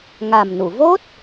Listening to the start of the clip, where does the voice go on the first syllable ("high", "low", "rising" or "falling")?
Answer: low